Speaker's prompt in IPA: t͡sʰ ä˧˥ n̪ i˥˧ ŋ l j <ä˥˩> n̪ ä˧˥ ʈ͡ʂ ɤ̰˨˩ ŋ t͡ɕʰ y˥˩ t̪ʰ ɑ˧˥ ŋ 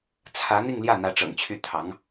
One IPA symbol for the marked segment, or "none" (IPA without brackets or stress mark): ä˥˩